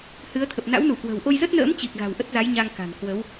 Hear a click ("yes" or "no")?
no